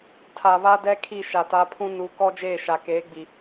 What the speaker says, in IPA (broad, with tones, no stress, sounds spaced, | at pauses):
tʰ a˨ β a˦ d ɛ˦ kʰ i˦˨ ʃ a˨ t a˨˦ pʰ ũ˦ n u˨˦ k ɔ˦ d͡ʒ eː˦˨ ʃ a˨ k eː˨˦ ɡ͡b i˨